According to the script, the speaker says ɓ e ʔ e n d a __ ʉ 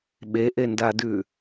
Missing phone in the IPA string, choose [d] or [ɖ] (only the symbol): d